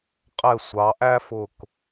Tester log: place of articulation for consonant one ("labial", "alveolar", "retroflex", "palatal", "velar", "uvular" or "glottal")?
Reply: uvular